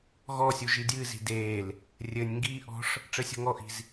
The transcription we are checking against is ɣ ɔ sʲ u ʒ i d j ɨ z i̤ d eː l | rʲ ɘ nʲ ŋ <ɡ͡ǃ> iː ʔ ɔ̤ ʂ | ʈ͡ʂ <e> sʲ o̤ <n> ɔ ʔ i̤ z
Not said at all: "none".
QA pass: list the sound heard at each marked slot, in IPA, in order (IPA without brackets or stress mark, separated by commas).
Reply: ɡ, ɘ, ŋ